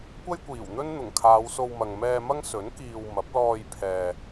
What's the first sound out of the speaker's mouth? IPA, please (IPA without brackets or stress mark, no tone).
kʷ